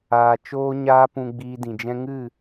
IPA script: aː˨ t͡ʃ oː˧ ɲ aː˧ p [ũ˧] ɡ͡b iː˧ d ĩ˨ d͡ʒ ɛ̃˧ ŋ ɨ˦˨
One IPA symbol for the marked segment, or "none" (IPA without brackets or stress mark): ũ˨